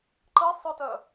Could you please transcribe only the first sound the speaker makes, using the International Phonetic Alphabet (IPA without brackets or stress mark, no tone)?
ǃ